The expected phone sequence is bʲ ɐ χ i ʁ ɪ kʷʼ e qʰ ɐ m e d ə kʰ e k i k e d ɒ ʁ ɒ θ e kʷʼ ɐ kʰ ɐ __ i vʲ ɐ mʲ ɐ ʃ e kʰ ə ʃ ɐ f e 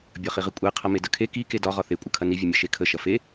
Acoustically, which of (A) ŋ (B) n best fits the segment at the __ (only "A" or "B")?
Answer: B